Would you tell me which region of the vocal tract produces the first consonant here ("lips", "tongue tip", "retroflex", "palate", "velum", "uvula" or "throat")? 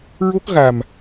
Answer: tongue tip